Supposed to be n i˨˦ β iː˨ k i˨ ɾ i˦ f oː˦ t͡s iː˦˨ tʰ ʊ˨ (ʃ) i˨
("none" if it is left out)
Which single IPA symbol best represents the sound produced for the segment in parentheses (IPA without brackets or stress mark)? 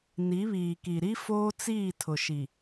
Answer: ʃ